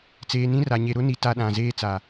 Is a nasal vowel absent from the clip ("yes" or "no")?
no